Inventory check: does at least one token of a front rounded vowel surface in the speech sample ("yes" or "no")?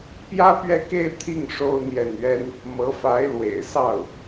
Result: no